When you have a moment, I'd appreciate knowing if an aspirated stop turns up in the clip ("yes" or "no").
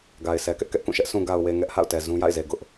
no